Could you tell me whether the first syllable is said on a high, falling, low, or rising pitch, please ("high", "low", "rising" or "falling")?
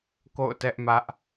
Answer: falling